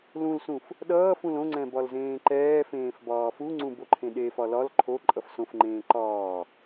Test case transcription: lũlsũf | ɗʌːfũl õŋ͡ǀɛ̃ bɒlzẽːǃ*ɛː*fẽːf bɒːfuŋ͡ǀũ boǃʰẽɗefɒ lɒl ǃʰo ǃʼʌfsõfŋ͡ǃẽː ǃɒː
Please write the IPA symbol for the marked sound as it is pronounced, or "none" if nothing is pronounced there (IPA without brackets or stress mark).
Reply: ɛː